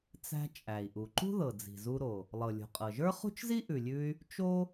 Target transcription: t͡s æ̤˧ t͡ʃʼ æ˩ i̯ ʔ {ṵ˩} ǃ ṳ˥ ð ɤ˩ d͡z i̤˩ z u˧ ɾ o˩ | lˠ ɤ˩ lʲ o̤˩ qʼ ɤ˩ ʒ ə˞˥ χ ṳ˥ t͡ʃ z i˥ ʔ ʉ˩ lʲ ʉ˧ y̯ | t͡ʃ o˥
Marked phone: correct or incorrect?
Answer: incorrect